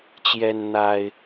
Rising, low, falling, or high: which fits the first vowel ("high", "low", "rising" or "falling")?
high